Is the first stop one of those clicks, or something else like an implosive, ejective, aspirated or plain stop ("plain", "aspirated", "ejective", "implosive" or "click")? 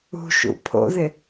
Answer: aspirated